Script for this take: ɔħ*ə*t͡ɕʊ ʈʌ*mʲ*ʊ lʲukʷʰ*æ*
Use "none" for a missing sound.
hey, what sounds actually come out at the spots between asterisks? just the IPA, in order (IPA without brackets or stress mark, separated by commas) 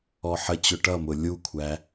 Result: ə, m, æ